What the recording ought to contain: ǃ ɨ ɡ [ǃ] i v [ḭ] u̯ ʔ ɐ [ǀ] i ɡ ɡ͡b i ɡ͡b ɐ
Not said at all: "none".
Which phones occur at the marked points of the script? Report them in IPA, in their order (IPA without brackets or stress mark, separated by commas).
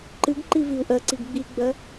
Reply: ǃ, i, ǀ